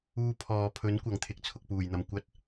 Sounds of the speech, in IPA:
uː˧ pʰ ɔː˨ pʰ ɵ˨˥ n kʷ ɐ˨˩ ŋ t̪ʰ ɪ˨ k̚ t͡sʰ ʊ˨ k̚ p uː˨˩ j n̪ ɐ˨˩ m kʷ ɐ˧ t̚

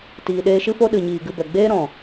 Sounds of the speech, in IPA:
t iː˨ ɗ eː˧ ʃ ɨ˦ f o˦ ɗ ɨ˨ ɲ iː˨ ɡ ɨ˧ b ɛ˨ ɡ͡b eː˦ ɾ ɔ̃˨

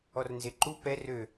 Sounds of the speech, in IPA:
ɔ r n z e ǃ u p ɛ r ø

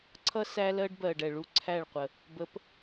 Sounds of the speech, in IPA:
ǀʰ ʌ˦ s æ˦ l ɜ˦ ɖ b ɜ˨ ɖ ɛ˨ ɭ u˦ ǀʰ æ˦˨ ɭ qʷ ə˨ | b ə˨˦ p

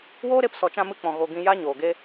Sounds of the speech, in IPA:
w oː˦ ɾ e˧ p s ɔ˨ t͡ʃ ã˧ m ɨ˧ k͡p ɔ̃˨ ɣ o˧ ɡ ĩ˧ j a˦ ɲ oː˨ ɡ e˦

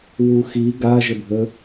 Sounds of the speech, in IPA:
w u x i ɡ a ʒ ə bʱ ə

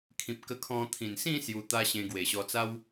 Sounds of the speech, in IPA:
kʰ ĩ˨ p̚ k ə˧ kʰ ɔ̃˧ t̪ʰ ĩ˨˩ n s ĩ˥˧ s j u˧ t̪ a˦ ɕ ẽ˧ ɡ w e˨˩ ɕ ɔ˧ t͡s a˦ w

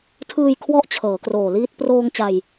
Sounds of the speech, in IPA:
tʰ ɯː˧ j kʰ w ɔ˥˩ ʔ t͡ɕʰ ɤː˩˦ k r oː˨˩ l iː˦˥ t̚ p r oː˧ ŋ t͡ɕ a˧ j

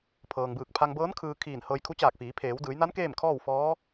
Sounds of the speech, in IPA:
pʰ ɤː˩ ŋ b ɯː˧˩ k̚ pʰ a˧ ŋ b ɤː˧˥ n kʰ ɯː˧ kʰ iː˧˩ n h ɤː˧ j kʰ u˧˥ t͡ɕ aː˧˩ k̚ f iː˩˧ pʰ eː˩˧ w d ɯː˩˧ j n a˧˥ n k eː˥˨ m kʰ ɔː˥˨ w f ɔː˧˥

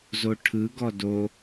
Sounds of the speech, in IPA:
z o ʈʰ ɯ ɡ ɔ d o

